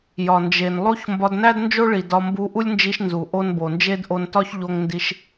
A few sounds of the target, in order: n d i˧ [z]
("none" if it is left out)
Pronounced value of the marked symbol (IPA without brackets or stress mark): ʃ